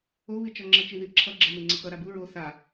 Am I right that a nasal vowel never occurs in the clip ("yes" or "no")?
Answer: yes